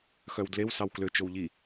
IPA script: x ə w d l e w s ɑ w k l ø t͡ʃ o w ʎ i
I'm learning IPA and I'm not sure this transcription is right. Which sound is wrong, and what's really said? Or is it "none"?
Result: ə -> œ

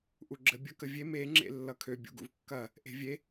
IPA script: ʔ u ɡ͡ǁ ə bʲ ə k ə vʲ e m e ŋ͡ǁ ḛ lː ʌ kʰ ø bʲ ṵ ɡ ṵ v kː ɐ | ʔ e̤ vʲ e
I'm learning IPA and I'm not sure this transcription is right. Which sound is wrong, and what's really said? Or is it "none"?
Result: none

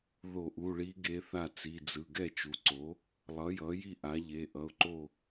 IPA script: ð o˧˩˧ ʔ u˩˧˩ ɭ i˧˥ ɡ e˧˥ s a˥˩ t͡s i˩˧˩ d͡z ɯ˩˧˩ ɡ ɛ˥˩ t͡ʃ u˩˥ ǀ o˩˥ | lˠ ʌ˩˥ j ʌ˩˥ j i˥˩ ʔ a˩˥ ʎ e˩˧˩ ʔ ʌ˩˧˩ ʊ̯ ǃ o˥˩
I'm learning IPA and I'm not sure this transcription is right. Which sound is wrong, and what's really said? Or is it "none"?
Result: s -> θ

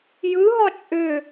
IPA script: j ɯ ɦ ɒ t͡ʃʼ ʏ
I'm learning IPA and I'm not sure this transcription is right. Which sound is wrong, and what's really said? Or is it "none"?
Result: none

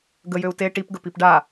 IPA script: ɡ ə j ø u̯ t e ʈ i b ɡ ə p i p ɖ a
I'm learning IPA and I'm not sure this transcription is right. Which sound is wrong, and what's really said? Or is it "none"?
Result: b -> p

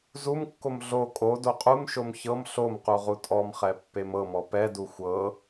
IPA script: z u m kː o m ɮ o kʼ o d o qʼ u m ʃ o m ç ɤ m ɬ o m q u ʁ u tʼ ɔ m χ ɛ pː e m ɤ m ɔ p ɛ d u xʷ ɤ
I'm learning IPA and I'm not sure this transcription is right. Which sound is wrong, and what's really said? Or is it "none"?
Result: none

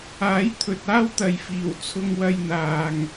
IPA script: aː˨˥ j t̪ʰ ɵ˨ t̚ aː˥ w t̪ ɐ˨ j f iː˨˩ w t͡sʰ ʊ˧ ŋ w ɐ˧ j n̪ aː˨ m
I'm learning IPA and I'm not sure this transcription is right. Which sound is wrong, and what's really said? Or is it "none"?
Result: m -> ŋ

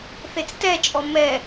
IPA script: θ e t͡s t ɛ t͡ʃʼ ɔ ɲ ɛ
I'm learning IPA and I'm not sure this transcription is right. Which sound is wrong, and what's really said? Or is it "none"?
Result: ɲ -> m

